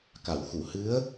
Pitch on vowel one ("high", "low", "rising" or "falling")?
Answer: low